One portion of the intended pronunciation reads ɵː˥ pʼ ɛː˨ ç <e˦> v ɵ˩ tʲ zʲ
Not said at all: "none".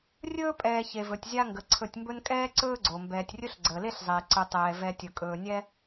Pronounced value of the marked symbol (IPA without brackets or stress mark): e˩